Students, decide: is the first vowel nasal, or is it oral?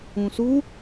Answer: nasal